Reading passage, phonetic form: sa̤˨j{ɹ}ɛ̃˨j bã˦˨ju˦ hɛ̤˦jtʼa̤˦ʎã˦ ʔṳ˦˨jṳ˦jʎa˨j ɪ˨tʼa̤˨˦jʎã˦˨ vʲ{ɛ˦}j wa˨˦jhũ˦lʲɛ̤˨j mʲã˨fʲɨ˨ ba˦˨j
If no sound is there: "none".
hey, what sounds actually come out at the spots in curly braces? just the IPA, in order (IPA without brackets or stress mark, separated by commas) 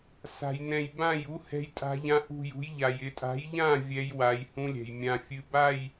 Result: n, ɛ˦